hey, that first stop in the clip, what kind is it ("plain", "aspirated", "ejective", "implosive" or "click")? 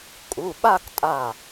ejective